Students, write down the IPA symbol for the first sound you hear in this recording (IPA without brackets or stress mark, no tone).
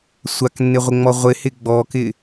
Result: sʷ